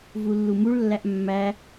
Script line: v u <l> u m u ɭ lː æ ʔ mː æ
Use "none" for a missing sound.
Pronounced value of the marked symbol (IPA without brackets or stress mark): lː